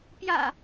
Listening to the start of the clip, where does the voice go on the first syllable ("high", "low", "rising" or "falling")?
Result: low